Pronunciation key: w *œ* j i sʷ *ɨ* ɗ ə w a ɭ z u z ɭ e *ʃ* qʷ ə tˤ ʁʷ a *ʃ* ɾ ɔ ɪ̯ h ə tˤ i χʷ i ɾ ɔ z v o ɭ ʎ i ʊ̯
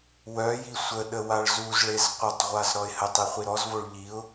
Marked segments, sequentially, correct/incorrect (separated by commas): correct, incorrect, incorrect, incorrect